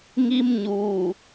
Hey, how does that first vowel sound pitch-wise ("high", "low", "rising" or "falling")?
high